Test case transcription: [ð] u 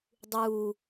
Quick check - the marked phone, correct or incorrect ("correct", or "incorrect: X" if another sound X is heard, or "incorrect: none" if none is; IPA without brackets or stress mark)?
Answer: incorrect: dˤ